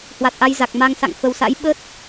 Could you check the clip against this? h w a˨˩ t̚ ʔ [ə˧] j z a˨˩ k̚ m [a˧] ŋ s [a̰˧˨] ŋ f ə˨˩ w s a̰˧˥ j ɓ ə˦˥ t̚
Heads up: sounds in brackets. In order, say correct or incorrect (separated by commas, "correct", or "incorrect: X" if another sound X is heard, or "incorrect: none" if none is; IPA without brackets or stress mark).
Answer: incorrect: a˧, correct, correct